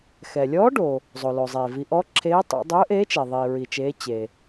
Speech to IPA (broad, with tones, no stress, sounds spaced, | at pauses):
x ɛ˩ lʲ ɔː˨˥ ɖ o˩ | zˤ o˩ l o˩ zˤ eː˩ v i˩˧ ʔ ɔ˨˥ ǁʰ eː˨˥ tˤ ḛ˩˧ dˤ ɵː˨˥ ʔ eː˨˥ t͡ʃ ɛ˩ ðˤ iː˩ ɹ i˩ t͡ʃ eː˩˧ t͡ɕ e˩